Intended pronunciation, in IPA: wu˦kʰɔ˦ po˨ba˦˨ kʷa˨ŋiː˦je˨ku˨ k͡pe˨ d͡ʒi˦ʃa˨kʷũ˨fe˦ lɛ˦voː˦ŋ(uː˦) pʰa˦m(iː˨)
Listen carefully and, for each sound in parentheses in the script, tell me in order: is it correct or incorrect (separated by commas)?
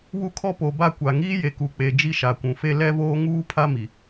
correct, incorrect